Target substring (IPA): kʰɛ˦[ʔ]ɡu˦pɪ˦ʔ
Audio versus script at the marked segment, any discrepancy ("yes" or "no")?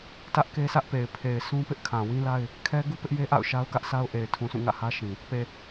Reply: yes